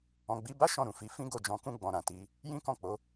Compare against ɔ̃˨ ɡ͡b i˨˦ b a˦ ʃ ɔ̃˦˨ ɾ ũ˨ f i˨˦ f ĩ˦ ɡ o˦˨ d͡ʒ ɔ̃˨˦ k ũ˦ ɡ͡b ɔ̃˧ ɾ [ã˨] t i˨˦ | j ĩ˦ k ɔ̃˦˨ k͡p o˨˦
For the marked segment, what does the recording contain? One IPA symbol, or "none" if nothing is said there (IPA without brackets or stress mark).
ã˨